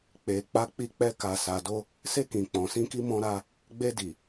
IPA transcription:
k͡pe˨k͡pa˧k͡pi˧k͡pɛ˧ ka˨ sa˨do˧ | se˧ kĩ˨ k͡pɔ̃˨sĩ˧ki˧ mɔ̃˧ɾa˧ | ɡ͡be˧di˨

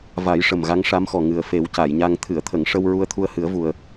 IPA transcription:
va˨˩˦j ʂə˨˩mɣa˧˥ŋʂa˧˥mxɔ˨˩ ŋɨ˨˩ə̯ fe˨˩˦wca˨˩˨jɲa˧ŋ t̪ʰɨ˨˩˨ə̯t̪ʰə˨˩˨ŋ ʂə˧w ɹu˧ə̯t̪ʰu˧ə̯hɨ˨˩˦ə̯vu˨˩ə̯

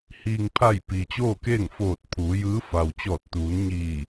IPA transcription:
hiː˩ŋpʰa˧˩j piː˩t͡ɕoː˥˨keː˥˨ŋ foː˧˩t̚pʰuː˩˧jɯː˧˥ fa˩wt͡ɕɔː˧˩t̚t̪uː˩˧nɲiː˧˩

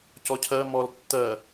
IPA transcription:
cɔcʰɜ mɔl tːɜ

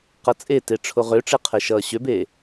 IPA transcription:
qʌt͡sʼete ʈ͡ʂʰoʁøʈ͡ʂe qʰɛʃʌːɕøbeː

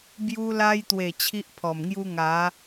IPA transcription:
bju˧la˧jt̪we˨˩ t͡ɕʰi˦ʔpʰɔ˨˩mŋju˦ ŋa˨˦

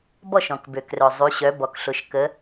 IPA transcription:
bɔ˥˨ʃɔ̃˩kbø˩krœ˩ zˤy˩˧ɕœ˩˧bɔ˩kɬʊ˩˧ʃ kə˩˧

